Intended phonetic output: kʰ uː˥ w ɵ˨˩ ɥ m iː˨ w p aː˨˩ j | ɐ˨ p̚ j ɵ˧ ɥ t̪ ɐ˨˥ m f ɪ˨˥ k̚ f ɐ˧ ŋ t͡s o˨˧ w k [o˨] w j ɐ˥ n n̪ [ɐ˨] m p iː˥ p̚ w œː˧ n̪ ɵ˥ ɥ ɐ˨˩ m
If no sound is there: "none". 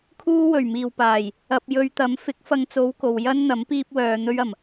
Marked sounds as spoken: o˨, ɐ˨˥

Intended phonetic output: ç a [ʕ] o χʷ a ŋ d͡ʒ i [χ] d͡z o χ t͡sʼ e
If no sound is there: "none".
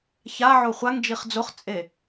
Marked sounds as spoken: ʕ, χ

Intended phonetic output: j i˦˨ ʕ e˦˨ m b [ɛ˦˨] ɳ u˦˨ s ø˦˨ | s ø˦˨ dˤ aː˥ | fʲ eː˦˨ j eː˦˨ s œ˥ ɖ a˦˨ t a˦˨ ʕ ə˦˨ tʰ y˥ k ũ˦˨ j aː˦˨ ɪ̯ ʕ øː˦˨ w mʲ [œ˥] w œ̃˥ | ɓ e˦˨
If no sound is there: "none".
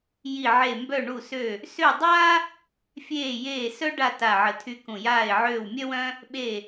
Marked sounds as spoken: œ˦˨, œ˥

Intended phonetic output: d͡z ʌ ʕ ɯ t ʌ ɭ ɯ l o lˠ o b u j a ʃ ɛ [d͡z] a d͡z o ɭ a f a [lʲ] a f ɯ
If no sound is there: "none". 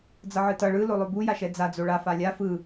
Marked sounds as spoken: d͡z, lʲ

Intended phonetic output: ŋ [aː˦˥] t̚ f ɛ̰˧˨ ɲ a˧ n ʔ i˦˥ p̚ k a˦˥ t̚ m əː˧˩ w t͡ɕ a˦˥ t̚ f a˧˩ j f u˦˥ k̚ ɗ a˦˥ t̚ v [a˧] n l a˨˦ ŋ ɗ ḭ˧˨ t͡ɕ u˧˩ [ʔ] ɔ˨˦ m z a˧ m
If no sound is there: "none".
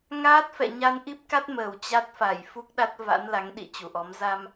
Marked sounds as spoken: aː˦˥, a̰˧˥, ʔ

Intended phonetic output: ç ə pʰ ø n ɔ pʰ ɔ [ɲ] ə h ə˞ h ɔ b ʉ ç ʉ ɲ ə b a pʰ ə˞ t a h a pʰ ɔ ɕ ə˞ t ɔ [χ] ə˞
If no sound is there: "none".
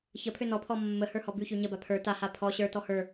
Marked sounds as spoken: mː, h

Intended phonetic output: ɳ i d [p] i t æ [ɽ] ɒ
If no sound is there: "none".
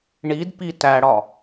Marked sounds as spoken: p, ɽ

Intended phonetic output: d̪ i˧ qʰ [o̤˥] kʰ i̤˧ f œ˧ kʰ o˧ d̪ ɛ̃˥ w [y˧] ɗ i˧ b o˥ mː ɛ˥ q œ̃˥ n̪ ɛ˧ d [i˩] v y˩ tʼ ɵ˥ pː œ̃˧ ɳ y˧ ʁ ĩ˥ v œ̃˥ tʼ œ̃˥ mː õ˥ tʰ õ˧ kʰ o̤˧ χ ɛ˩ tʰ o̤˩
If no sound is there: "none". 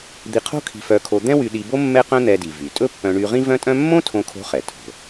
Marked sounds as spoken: o̤˥, y˧, i˩

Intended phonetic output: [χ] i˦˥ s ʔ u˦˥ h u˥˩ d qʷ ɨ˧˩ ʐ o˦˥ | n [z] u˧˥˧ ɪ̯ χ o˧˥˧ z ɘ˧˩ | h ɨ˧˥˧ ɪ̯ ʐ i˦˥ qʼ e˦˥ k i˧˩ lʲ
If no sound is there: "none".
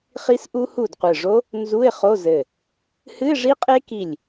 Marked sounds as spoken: χ, z

